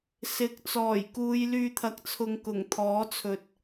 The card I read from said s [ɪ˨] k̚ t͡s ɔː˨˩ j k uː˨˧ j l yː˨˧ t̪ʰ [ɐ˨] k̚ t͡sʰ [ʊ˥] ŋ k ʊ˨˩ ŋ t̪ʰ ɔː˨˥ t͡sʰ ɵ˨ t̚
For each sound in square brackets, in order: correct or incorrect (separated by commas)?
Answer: incorrect, correct, incorrect